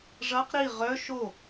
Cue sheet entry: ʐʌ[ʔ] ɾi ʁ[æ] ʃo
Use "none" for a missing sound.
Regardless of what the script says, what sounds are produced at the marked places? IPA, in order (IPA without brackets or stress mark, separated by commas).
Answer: q, œ